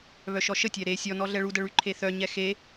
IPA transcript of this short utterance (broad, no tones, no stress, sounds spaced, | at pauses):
β œ ʃ ɔ ʃ ə tʲ ɛ ɾ e sʲ ɔ n ɔ ɮ ɛ ɭ u d ə ɭ y ǃʰ e θ œ ɲ ɛ x e